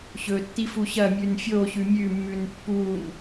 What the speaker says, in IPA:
ɕɵtːi fuɕɐmʲʉn fʲoɕʉ mʲʉmːʉn pːun

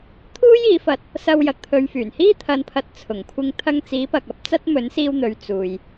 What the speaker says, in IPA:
t̪ʰuː˥jiː˨˧fɐ˧t̚ | sɐ˧w jɐ˨k̚t̪ʰɵ˨˧ɥfyː˨˩n hiː˥t̪ʰɐ˨˧npʰɐ˨t̚ t͡sʰʊ˨˩ŋkʷʰɪ˧ŋ t̪ʰɐ˧ŋt͡siː˨˥pɐ˨k̚ɐ˨˥p̚ t͡sɐ˥t̚mɵ˨˥nsiː˧wn̪ɵ˨˧ɥ t͡suː˨j

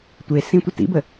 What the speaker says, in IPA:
tʷesĩtʷə tḭbə

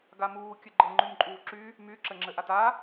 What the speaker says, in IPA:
ɡamuː kʲɘɡ͡ǃɤ ŋ͡ǃymǃʼuːǁy | my ǁɘŋ͡ǁɘʔata

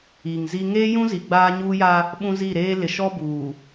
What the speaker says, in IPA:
i˨ŋzi˦ ŋeː˦jũ˦ zi˨ɡ͡baː˦ɲuː˦ja˦ | ɓũ˦zi˦˨ɾeː˦ lɪ˨ʃɔ˦ buː˨

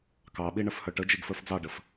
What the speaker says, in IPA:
kɑɓi ɳəfhœʈəd͡ʒiɡ fə˞fd͡zɑɖəf

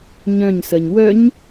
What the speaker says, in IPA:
ɲœ̃ɲsɜɲ wœɲ

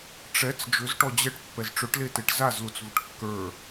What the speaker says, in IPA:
ʈ͡ʂɛt͡s d͡ʒʏzʈɔ d͡ʑɛʈ pːɛzʈ͡ʂøʈleteʈ zazlut͡svʏʈ kːə˞

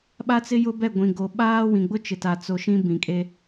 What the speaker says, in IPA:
ɓa˦t͡sɪ˦jʊ˦ bɛ˦˨ɡʷĩ˨ɡo˨ ɓaː˦wĩ˨ɡ͡bʊ˦ t͡ʃɪ˨ta˨ t͡so˨ ʃĩ˦bĩ˨kʼe˦

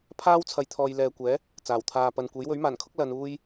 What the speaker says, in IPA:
pʰaː˥wt͡sʰɐ˨j t̪ʰɔː˨jlɛː˨kʷɛː˨˥ | t͡saː˨˩wt̪ʰaː˨pɐ˨nkʷe˨˥j wɵ˨˥ɥmaː˨˩nkʰʊ˥k̚ lɐ˨˧nuː˥j

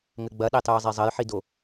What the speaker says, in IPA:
ŋɘɡ͡bɐɗetˤɨː zˤezˤɐjħido

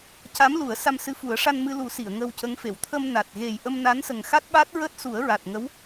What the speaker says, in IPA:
ca˧˥mlu˨˩˦ə̯ sa˧msɨ˧˥fu˨˩˦ə̯ ʂa˧nmɨ˧lu˨˩˦ si˨˩˨ə̯ŋə˧w cə˧˥ŋfe˨˩˨w t̪ʰə˧mna˨˩t̚ ɣe˨˩jʔə˧mna˧˥n sə˨˩ŋxa˦˥t̚ɓa˦˥t̚ ɹəː˦˥t̚su˨˩˦ə̯ɹa˨˩t̚ŋə˧˥w

